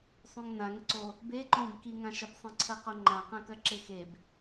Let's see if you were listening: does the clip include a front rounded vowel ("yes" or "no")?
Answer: no